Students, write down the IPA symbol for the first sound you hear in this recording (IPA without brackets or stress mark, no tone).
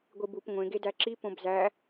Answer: ɡʷ